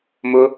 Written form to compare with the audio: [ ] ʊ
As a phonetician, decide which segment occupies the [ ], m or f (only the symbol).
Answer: m